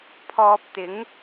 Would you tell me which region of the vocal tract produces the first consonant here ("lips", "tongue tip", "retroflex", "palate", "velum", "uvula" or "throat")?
lips